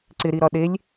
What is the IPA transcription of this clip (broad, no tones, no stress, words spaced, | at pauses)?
ǀɪ ɾiɾɒɗelʲ